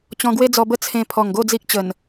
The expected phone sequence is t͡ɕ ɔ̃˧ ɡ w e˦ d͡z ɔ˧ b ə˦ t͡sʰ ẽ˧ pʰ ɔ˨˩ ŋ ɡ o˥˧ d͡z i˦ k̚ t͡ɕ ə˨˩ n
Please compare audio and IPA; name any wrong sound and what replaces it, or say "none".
none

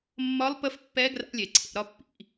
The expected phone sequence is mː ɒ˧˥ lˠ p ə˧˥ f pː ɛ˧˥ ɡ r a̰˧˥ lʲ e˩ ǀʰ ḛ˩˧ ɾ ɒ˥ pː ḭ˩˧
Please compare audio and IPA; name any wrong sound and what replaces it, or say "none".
none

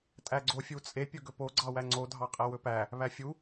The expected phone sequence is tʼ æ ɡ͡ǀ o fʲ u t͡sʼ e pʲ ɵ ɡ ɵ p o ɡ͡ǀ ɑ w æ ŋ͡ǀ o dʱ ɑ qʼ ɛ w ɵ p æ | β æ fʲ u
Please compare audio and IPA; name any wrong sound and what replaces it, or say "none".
none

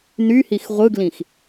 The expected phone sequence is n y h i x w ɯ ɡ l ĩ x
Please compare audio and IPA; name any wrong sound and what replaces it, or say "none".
w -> ʁʷ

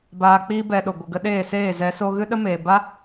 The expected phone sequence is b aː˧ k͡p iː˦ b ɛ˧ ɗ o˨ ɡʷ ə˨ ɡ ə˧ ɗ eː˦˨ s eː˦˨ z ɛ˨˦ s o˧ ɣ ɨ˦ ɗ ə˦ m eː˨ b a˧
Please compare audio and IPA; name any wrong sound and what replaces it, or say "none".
none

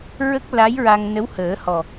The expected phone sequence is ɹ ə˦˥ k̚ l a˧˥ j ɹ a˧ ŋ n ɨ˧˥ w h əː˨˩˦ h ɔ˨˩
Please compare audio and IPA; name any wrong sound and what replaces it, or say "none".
ɨ˧˥ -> ə˧˥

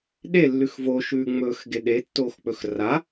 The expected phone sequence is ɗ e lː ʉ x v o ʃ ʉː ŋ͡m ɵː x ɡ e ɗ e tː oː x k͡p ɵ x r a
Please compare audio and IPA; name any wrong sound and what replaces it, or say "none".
none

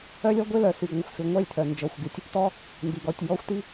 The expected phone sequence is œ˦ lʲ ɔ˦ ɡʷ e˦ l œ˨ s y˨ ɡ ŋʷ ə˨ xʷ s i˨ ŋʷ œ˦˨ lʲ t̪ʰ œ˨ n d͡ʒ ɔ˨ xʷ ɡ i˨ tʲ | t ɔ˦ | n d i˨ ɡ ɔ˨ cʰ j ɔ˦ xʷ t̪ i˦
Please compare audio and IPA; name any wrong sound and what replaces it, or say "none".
cʰ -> tʲ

